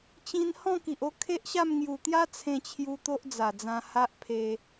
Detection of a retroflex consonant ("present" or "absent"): absent